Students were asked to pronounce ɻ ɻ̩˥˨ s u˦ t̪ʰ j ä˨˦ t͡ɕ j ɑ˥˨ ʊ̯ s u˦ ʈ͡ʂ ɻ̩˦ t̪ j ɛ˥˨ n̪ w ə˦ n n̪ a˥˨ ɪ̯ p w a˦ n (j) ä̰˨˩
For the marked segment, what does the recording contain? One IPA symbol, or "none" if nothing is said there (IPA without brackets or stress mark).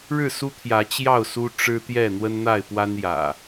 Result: j